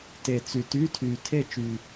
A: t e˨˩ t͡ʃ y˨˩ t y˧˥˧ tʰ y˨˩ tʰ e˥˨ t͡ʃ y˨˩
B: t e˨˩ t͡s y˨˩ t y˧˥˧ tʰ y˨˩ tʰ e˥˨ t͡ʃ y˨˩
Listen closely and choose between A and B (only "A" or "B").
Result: B